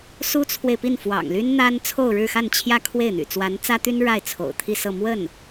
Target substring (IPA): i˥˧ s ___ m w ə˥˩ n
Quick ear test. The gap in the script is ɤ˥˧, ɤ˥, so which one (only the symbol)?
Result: ɤ˥˧